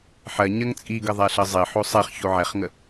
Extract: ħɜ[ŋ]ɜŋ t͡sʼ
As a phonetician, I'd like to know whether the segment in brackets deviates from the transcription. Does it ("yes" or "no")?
yes